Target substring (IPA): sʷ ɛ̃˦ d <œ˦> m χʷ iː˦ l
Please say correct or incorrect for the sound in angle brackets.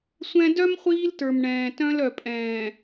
correct